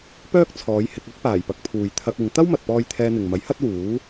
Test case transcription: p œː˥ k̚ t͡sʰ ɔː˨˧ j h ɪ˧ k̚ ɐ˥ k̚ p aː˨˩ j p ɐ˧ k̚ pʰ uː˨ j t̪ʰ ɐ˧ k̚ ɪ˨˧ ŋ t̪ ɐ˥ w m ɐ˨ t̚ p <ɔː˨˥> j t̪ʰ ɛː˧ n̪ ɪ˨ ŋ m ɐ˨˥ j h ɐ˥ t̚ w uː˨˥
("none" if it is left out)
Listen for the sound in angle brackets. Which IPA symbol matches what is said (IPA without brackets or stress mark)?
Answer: ɔː˧